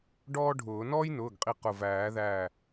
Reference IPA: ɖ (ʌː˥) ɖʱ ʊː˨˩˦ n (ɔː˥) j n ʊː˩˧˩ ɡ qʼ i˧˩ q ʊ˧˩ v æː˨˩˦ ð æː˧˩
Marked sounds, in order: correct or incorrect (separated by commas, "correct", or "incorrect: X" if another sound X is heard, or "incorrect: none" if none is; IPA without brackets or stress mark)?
incorrect: ɔː˥, correct